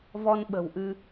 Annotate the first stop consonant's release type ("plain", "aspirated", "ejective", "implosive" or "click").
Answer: implosive